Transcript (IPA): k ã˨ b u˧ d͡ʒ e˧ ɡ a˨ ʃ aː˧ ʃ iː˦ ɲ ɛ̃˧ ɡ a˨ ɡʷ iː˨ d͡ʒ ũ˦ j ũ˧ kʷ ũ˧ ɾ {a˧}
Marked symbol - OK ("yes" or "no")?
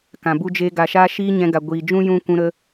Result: no